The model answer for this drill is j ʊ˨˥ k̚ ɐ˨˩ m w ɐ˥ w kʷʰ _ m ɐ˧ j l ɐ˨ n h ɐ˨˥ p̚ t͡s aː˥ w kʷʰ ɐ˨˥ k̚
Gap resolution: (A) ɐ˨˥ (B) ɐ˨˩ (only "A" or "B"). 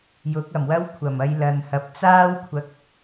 B